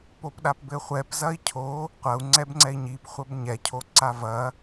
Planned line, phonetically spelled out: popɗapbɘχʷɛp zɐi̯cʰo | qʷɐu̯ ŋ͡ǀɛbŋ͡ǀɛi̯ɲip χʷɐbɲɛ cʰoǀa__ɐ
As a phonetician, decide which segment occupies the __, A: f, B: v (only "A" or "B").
B